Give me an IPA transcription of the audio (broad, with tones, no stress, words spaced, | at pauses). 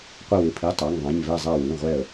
qʷɪ˧˩wɪ˩˧˩pʰi˩˧˩ tˤa˩˧˩ŋðˤã˩˧˩ɲvɛ˧˩zˤa˧˩ wĩ˩˧˩ʁʷɛ˧˩ə̯